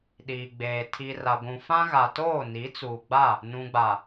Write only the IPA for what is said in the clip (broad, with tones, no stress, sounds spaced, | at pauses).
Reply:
ɗ iː˨ ɡ͡b eː˨ tʰ i˨ r a˨ ɡʷ ũ˨ f ã˦ ɣ a˨ t oː˦˨ n i˨˦ t͡s uː˨ ɡ͡b a˦˨ | n ũ˨ ɡ͡b a˨